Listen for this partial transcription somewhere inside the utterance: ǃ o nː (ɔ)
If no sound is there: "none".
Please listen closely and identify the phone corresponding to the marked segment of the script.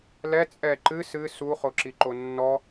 ɔ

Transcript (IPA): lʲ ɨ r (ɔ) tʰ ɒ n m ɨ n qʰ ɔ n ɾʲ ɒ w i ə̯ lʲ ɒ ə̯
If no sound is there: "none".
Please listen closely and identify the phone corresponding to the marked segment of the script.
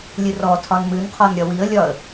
ɔ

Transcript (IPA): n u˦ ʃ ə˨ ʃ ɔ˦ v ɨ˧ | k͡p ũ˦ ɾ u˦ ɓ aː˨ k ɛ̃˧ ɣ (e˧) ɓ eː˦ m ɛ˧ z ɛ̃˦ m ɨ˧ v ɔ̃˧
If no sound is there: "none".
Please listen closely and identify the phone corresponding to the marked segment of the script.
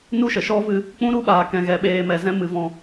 ɛ˧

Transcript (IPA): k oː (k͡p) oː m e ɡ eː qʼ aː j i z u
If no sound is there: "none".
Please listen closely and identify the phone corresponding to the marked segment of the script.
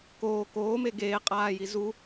k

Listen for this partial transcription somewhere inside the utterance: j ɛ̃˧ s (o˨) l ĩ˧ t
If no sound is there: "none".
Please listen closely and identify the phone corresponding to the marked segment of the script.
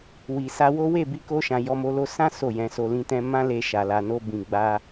o˧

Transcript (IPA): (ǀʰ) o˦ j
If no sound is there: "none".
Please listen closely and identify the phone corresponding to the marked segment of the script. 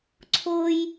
ǀʰ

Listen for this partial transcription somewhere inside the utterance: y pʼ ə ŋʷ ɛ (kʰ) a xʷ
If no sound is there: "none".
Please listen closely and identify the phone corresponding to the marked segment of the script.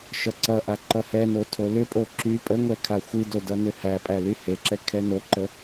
kʰ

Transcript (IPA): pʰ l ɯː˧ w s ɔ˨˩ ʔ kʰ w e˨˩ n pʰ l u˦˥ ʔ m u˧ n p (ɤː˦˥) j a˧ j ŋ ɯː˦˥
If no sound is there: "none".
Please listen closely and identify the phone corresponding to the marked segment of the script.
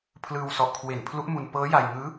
ɤː˦˥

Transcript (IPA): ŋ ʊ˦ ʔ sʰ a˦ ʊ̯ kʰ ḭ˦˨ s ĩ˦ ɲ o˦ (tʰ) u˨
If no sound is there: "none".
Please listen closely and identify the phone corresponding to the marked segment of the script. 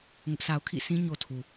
tʰ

